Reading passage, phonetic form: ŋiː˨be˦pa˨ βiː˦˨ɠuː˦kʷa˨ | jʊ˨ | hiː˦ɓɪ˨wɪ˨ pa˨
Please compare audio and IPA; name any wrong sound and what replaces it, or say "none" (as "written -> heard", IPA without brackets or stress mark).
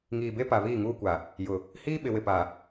ɠ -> ŋ